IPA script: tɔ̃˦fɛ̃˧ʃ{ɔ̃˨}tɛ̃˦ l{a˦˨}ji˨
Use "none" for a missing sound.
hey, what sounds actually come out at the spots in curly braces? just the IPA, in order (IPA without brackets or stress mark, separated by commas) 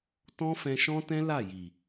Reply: ɔ̃˦, a˦˨